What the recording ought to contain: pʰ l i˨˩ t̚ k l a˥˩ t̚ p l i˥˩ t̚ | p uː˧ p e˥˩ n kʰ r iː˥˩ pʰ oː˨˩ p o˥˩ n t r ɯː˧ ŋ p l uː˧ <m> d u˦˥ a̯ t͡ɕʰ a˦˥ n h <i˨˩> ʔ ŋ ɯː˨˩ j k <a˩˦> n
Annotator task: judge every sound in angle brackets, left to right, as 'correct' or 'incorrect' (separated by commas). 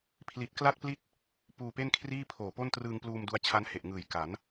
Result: correct, incorrect, correct